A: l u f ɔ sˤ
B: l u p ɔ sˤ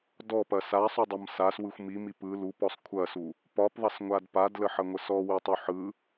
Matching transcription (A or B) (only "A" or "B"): B